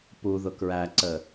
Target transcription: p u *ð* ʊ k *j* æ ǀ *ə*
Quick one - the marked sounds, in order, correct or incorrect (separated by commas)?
correct, incorrect, correct